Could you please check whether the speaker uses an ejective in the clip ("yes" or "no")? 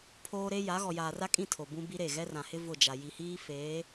yes